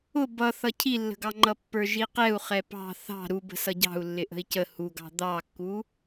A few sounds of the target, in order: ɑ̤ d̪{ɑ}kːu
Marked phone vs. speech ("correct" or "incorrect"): correct